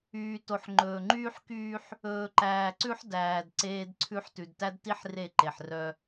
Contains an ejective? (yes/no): no